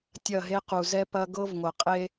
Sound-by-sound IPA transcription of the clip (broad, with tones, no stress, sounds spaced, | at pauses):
tʲ ɐ˦˨ ɦ e˦ q u˨ z ɛ˦ p ɐ˦ ɡ ɤ˦ v ŋʷ ɐ˨ qʼ e˦